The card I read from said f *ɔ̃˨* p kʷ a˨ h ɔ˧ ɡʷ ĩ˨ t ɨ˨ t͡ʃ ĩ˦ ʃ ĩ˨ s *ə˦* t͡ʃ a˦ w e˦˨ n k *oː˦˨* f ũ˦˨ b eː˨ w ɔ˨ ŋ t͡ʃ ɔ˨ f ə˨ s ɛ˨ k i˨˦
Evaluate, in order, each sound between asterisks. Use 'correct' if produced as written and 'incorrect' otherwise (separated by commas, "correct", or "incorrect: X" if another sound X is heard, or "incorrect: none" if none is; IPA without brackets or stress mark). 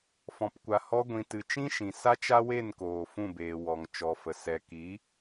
correct, incorrect: a˦, incorrect: oː˨